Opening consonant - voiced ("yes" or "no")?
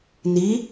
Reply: yes